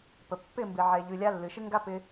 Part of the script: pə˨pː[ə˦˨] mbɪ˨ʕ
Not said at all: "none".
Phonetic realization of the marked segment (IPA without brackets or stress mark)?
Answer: ɪ˦˨